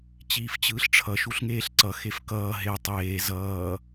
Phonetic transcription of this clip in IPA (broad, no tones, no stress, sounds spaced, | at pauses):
t͡ɕ iː f t͡ɕ ɯː ɬ ʈ͡ʂʰ ʌ ʃ u ɬ ŋ eː ɬ ǀ ʌ x e f k ʌː ɦ e tˤ eː z ʌː